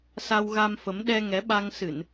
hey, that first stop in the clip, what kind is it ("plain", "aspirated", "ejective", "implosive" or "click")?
implosive